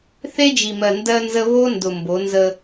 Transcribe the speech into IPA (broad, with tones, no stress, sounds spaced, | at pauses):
θ e˦ d͡ʒ i˨ m ɜ˨ n d ɜ˦ n z ə˦ β o˦ n d ʊ˨ m b o˨˦ n z ə˦